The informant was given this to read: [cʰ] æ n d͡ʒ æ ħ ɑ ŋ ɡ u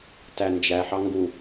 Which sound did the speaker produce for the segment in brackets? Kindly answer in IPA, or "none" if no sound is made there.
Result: t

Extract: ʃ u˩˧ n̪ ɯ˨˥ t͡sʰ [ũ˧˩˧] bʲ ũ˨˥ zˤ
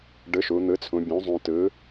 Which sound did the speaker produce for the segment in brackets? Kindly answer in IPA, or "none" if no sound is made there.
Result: ũ˩˧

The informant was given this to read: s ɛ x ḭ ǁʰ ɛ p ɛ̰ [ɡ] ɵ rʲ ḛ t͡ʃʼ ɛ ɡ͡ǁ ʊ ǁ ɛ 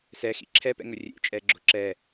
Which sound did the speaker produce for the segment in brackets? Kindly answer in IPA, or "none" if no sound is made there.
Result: ŋ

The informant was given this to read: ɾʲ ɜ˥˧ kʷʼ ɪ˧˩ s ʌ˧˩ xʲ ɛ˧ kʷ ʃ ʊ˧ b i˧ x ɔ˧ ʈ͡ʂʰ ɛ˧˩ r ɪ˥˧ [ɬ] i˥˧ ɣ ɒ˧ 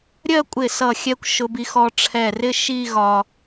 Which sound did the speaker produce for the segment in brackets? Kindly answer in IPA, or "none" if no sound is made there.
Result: ʃ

